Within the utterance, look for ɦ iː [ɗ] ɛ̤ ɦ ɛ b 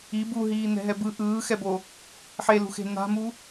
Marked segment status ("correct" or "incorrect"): incorrect